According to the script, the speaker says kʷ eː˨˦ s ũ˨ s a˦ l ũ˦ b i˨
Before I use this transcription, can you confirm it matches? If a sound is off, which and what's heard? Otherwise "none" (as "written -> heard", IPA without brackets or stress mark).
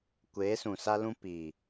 b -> p